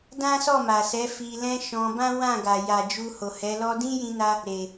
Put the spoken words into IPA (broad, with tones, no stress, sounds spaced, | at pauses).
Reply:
d ã˦ s ɔ˦˨ m a˨ s ɛ˨˦ f i˧ l ɛ̃˦ ʃ ɔ̃˧ b ã˦ w ã˦˨ ɡ a˨ j a˨ d͡ʒ u˧ h o˨ h ɛ˨˦ l ɔ˧ d ĩ˦ j ĩ˧ n a˧ | ɾ e˨